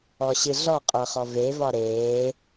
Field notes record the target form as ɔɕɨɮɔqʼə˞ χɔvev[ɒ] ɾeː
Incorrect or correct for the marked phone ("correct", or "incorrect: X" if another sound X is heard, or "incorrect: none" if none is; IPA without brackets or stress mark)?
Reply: correct